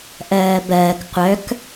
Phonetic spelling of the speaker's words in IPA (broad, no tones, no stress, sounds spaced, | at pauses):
ʔ ɜː b ɜː k qʷ œ k